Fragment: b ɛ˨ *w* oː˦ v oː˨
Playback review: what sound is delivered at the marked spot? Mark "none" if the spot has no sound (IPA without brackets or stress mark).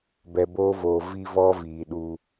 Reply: b